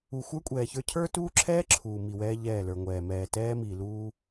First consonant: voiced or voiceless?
voiceless